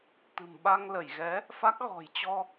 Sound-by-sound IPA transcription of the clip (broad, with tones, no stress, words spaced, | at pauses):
t̪ɨ̤˨˩m ɓa˧ŋlə˧˩jɣɛ˨˦ | fa˦˥k̚ɣɔ̤˨˩j t͡ɕɔ˧